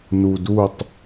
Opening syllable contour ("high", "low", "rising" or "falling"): low